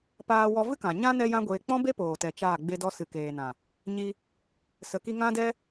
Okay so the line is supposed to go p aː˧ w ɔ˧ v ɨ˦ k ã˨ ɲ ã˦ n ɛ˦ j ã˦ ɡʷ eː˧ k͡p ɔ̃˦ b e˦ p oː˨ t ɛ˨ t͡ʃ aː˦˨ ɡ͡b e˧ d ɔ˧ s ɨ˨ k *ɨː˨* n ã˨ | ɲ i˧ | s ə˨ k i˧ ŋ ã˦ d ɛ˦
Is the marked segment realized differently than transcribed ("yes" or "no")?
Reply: yes